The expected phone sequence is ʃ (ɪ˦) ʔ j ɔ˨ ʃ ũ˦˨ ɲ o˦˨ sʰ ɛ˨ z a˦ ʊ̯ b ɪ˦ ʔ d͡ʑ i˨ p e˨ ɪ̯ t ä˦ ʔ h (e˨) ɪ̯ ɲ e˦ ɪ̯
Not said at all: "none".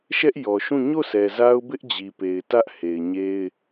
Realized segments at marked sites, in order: ɛ˦, e˨

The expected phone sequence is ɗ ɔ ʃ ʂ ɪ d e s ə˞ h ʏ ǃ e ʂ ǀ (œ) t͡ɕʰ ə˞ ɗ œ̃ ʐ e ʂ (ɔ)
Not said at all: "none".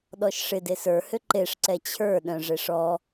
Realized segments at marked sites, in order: ɛ, ɔ

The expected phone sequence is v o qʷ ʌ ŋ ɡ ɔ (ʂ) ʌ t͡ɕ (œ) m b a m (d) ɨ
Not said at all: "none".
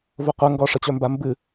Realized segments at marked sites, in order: ʂ, œ, b

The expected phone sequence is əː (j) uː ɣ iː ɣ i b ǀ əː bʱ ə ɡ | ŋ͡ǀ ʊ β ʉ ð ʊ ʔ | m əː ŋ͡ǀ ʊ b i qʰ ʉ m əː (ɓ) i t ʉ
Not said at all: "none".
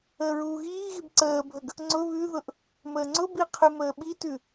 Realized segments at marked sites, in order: ɹ, ɓ

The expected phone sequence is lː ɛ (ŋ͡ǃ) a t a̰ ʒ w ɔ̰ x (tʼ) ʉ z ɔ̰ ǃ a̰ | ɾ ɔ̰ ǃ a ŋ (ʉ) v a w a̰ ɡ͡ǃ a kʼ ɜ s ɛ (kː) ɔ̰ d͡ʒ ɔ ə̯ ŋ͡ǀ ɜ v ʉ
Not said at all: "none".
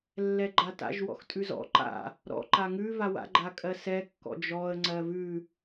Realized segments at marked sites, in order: ɡ͡ǃ, tʼ, ʉ, kː

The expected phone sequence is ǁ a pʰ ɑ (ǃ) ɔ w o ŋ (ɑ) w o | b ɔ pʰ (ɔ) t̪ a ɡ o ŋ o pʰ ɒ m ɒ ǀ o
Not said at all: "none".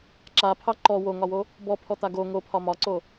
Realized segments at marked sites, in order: ǃ, ɒ, ɔ

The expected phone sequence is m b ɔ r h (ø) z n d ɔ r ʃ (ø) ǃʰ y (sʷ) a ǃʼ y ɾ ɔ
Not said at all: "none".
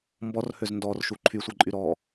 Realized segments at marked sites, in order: ø, u, sʷ

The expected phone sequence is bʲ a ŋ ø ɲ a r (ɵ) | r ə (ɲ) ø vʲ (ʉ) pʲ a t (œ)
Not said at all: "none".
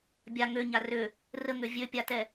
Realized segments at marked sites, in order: ø, ŋ, ø, ɛ

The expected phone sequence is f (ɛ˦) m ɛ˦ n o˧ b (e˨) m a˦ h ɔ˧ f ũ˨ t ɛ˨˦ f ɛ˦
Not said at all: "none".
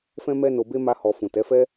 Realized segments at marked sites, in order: ɛ̃˦, e˦

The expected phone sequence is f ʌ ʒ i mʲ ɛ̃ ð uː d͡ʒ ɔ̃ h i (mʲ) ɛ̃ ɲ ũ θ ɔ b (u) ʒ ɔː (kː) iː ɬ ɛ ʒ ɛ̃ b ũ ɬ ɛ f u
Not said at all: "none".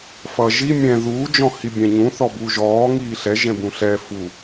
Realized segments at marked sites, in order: bʲ, u, ŋ

